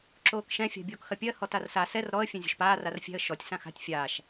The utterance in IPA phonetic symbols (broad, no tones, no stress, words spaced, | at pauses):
ǁoːkʃɛ̃ fʲa̤bʲoːkxɐpʲɜ hɔtarsa sɛr ɾɔə̯ fʲɛ̃zʲo̤ʃpaː rarfʲɛ̤ə̯ ʃɔtʲ sãxa̤tʲ fʲaːʃ